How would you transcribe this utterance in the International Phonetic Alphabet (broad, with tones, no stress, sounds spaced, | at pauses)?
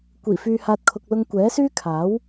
kʷ iː˨˩ f yː˨ h aː˨ t̚ kʰ ʊ˨ k̚ l ʊ˧ ŋ kʷ ɛː˨˥ s yː˥ kʰ aː˨˥ w